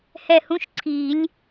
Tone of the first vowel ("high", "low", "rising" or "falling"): falling